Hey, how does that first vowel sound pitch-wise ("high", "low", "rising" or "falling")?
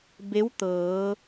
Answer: rising